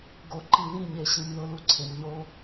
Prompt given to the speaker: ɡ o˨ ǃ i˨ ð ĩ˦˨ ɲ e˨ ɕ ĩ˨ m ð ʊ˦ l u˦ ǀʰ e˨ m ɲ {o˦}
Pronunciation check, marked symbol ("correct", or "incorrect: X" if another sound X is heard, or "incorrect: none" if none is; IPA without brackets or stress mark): correct